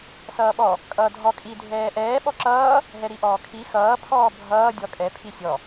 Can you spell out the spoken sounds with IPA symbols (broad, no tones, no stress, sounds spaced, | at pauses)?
s ʌː ɓ ɔ | kʼ ʌː dʱ ɔ kʼ i dʱ ɛː ʔ ɛː ɓ ɔ ǁ ʌː | ɦ ɛ ɾ i ʔ ɔː kʰ i x ʌː pʰ ɔː bʱ ʌː dʲ ɔ kʼ ɛ pʰ i sʲ ɔ